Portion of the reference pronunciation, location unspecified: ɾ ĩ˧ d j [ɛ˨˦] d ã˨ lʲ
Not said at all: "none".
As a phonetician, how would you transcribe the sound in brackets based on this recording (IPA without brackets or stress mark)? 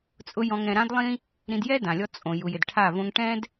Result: ɛ˦